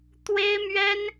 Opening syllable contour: high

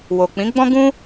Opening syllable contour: low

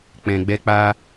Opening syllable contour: low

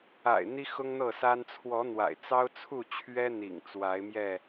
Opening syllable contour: low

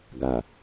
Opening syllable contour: low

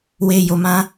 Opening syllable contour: low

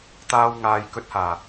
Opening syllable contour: high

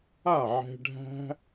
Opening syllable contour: falling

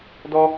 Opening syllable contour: high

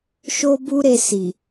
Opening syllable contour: high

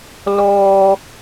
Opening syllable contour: high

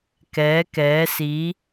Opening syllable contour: rising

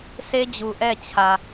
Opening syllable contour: high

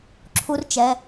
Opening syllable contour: high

